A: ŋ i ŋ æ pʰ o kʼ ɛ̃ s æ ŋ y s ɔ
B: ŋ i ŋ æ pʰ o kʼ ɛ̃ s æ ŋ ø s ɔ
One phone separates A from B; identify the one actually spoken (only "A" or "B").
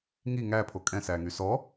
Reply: A